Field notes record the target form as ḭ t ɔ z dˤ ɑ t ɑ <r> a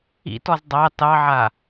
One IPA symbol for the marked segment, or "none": ʕ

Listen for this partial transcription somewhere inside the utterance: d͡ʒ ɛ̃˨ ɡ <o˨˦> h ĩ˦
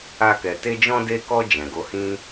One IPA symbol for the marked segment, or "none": o˨˦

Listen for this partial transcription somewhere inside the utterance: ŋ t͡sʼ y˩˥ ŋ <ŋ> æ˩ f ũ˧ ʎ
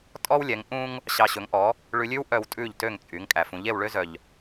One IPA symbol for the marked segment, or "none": kʼ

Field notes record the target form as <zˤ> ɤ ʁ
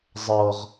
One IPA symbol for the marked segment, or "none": zˤ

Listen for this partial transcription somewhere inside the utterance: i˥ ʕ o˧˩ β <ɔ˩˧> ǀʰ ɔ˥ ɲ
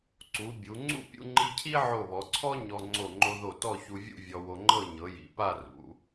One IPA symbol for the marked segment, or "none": ɔ˩˧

